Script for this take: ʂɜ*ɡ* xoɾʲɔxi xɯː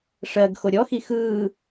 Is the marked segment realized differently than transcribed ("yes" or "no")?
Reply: no